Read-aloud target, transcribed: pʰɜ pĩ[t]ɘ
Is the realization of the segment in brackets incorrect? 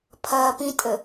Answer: yes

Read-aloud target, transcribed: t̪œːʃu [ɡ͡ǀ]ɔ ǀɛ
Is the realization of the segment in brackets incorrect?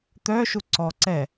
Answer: yes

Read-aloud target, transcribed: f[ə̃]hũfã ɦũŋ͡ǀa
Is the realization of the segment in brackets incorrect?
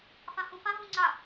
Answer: yes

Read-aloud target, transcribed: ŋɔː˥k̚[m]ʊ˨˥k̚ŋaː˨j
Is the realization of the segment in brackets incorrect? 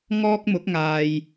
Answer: no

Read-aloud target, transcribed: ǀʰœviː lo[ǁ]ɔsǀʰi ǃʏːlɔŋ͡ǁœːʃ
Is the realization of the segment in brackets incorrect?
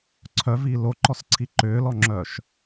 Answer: yes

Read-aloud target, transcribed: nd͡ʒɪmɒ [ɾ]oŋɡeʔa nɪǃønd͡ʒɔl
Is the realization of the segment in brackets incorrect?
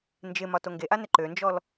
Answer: yes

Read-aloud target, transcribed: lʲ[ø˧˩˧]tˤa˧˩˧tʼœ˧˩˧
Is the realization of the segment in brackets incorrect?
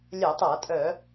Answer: yes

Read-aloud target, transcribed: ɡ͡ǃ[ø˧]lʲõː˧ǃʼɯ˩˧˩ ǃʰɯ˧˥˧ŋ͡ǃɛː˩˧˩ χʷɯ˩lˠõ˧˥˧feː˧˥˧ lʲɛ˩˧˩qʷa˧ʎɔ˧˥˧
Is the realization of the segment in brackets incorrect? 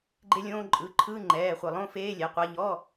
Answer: yes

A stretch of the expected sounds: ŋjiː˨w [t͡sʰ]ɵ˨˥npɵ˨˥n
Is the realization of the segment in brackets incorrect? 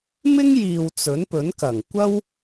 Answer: yes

